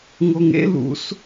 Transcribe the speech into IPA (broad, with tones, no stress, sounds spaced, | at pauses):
ŋ o˧ ŋ ḛ˥ l ṵ˧ s